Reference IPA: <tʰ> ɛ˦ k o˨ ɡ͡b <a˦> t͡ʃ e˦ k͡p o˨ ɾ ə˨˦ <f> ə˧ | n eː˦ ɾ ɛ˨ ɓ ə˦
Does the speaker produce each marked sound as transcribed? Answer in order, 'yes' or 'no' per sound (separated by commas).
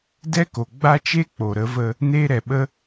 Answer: no, yes, no